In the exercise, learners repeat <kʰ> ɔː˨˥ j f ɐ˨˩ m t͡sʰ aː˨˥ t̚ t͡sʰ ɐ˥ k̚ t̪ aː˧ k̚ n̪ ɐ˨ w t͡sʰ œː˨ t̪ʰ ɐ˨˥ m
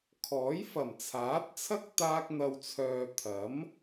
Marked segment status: correct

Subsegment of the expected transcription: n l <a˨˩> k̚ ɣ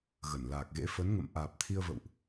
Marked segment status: incorrect: aː˨˩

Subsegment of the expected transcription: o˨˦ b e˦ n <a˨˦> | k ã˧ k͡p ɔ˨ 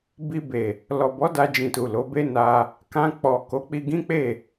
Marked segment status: incorrect: a˧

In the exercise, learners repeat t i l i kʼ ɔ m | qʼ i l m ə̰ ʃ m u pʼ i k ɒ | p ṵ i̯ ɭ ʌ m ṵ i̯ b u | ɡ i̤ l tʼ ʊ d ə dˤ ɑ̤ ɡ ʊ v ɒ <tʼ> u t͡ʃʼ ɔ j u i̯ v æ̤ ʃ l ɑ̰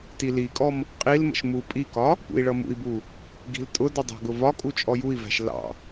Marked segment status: incorrect: kʼ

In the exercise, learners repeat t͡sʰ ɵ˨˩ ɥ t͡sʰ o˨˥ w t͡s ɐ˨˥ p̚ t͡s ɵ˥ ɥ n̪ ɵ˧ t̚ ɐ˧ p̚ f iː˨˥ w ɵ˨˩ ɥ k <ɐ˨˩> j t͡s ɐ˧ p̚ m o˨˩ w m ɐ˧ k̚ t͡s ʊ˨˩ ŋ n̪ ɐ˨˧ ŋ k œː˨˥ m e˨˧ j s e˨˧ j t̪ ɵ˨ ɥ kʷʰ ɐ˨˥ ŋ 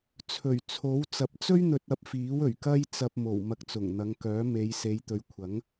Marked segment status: incorrect: ɐ˥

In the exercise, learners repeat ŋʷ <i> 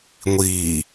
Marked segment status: incorrect: iː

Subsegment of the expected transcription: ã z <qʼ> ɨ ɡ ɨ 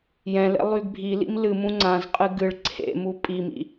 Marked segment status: correct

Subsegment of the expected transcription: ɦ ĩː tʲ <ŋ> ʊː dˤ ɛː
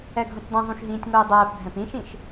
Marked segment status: correct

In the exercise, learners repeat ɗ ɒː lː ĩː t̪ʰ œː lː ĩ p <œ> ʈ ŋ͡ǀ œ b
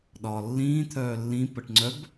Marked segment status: incorrect: ə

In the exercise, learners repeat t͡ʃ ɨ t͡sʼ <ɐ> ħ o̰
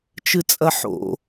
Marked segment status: correct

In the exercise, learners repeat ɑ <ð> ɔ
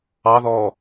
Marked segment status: correct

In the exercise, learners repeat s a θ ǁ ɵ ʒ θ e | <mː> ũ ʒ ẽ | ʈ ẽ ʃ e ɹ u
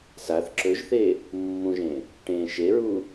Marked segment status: correct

